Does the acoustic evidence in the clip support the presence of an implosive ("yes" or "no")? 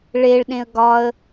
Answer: yes